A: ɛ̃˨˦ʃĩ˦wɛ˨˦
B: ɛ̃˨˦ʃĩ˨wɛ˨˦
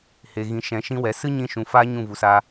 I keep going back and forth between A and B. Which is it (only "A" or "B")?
A